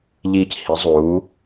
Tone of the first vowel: low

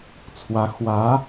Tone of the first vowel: rising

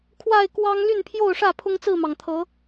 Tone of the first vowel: falling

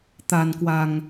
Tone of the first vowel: low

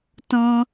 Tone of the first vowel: high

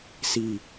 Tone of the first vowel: falling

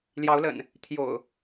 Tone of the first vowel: rising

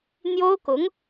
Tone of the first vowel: high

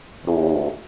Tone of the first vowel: low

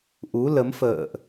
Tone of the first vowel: rising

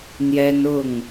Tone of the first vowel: high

